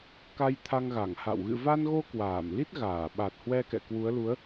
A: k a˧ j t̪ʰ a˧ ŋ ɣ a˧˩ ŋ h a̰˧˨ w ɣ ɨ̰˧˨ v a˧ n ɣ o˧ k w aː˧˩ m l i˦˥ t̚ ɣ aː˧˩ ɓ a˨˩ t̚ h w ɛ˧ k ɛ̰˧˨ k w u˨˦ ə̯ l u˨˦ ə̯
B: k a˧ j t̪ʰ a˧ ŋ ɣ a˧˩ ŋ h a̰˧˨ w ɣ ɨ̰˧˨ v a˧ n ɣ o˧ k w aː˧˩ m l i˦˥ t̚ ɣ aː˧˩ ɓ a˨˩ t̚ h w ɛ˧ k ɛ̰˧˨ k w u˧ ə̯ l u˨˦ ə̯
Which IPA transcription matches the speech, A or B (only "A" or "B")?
A